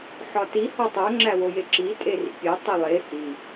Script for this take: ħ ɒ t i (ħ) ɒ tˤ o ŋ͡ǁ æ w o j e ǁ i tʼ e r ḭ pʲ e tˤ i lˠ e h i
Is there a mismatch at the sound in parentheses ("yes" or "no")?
yes